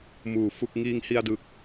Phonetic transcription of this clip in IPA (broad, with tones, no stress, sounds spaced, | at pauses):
m uː˨˩ f u˥˩ k̚ ŋ iː˧ ŋ h i˧ a̯ d ɯ˨˩ k̚